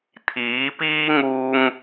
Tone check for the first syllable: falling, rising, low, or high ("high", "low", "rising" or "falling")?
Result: rising